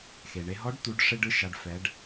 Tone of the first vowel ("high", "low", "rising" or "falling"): low